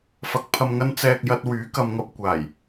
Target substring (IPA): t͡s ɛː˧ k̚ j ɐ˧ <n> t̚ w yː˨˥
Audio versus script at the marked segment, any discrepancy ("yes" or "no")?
yes